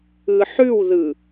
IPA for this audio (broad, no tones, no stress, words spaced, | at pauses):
ɯħʉwðɯ